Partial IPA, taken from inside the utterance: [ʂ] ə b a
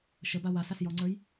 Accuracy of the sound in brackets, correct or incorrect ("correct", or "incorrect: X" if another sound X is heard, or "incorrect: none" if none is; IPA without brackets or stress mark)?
incorrect: ʃ